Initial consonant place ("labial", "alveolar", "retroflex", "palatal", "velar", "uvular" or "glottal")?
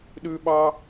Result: alveolar